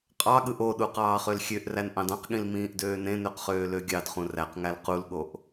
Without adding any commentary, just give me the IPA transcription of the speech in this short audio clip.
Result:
qʼ ɑ ɠ ɯ ʔ o ɗ u q ɑː χ ø l xʲ ø ʔ r æ n ʔ ɑ̃ d ɑ̃ q ɠ ĩ l m ĩː ʔ d øː n ẽ n ø q χ øː l ø ɡʲ ɑ d χ ũ r æ q ŋ æ l q u l ɠ o ʔ

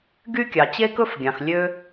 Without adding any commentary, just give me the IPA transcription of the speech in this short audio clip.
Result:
ɡ y˥ kʲ ɑ˩ t͡ɕ e˥ k ɵ˥ f ɡʲ ɑ̃˩ x lʲ ø˥

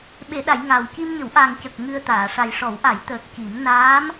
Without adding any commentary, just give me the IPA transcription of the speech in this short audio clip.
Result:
ɓ e˨˩˨ ɗ a˨˩˨ j ŋ aː˨˩ w c i˧ m ɲ ə˨˩˦ w ʔ a˨˩ ŋ c ə˨˩ k̚ ŋ ɨ˧ ə̯ t̪ aː˨˩˨ ʂ a˨˩ j ʂ ɔ˨˩˦ w ʔ a˨˩˦ j t̪ əː˨˩ k̚ c i˨˩˦ m n aː˧˥ m

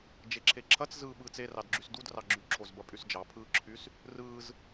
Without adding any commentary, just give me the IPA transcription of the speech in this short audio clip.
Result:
d͡ʒ e ǁʰ e ǁʰ ɐ t͡s z ɯː ɓ ɯː t͡s e r ɑ d ɡ͡ǁ y s d u d r ɑ ɡ͡ǁ y ǁʰ o z b ɐ pʼ y s d͡ʒ ɑ pʰ ɯː ǁʰ y s | r ɯː z

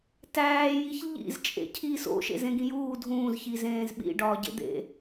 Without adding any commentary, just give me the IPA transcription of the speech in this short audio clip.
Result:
t æː j i ç ʎ ḭ z t͡ʃʼ ḛ cʰ i s o̰ ʃ ḛ z ẽ ɡ ĩ j uː dʱ ũː z ç i z ẽː z ɓ ḭ ɖ ɒː ɟ ḛ d̪ ḛ

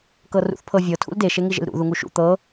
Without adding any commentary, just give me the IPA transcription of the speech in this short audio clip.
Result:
k ɤ r ṵ θ pʰ ɤ vʲ ɤ tʰ ṵ l d e ʃ e ŋ i ʒ ḛ l ɾ ṵ ð u ŋ u ʃ ṵ t̪ ɤ

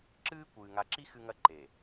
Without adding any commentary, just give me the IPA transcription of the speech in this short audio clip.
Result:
ǁ ɨː˦ kʷ ɨː˨ ŋ a˨ ǁ i˦ x ɨ˦ ŋ ɐ˦ ǃ e˨

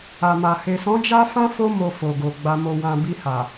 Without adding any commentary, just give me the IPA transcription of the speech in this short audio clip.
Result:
a˨ m a˨ h e˨ s ɔ̃˨˦ d͡ʒ a˦ f ã˦ f o˦ m o˧ f o˨ ɡ o˨ ɡ͡b a˧ m o˧ w ã˧ b i˧ h a˨

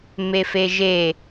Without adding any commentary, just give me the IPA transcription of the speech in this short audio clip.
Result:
m e f e ʒ e

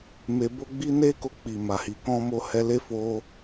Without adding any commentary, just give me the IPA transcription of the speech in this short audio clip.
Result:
m e˨ b o˧ ɡ͡b i˦ n e˦ k o˧ k͡p i˨ m a˨ h i˨ k ɔ̃˧ m o˧ h ɛ˧ l e˦ f o˦

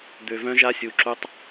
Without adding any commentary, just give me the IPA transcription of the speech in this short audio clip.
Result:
d̪ ø˨ v œ̃˦ ʒ a˦ sʲ u˨ ǁ u˦ tˤ

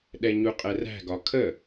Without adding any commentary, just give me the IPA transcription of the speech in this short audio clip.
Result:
ɗ ɛ ɲ u qʼ ɛ r æ̤ ɡ ɒ kʰ ə

